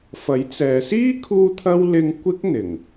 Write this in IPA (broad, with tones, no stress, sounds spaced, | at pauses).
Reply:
f ɐ˨˥ j t͡s ɛː˨˧ s iː˥ kʰ uː˥ t̪ʰ ɐ˥ w l ɪ˥ ŋ kʷ ɪ˥ k̚ n̪ ɪ˨˩ ŋ